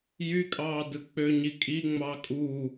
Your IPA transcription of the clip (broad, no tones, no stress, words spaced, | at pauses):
jykʼɑː dɯk͡pøɲi kʼi ŋ͡mɑːkʼuː